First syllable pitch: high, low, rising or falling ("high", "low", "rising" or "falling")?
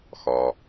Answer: low